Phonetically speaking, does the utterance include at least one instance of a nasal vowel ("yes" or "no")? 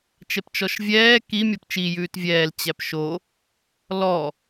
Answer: no